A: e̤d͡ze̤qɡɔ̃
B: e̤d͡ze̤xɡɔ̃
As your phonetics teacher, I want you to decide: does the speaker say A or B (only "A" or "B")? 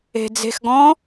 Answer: B